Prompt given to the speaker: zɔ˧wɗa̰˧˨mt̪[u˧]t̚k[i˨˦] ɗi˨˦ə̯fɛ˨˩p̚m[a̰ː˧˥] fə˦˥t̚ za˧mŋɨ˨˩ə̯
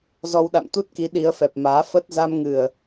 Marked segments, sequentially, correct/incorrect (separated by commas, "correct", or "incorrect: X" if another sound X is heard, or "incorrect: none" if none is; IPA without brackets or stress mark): incorrect: u˦˥, correct, incorrect: aː˨˦